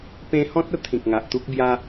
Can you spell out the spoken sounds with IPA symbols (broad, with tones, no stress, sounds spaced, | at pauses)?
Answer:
p ẽ˧ h ɔ̃˦ t̚ ə˧ t̪ʰ ĩ˨ k̚ ŋ a˨ ʔ t̪ u˦ k̚ b j a˧